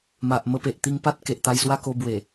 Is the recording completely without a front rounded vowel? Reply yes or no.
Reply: yes